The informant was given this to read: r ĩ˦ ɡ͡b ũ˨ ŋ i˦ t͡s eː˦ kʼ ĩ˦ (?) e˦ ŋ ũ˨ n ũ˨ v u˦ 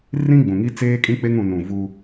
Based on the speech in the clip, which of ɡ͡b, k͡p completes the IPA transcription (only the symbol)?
k͡p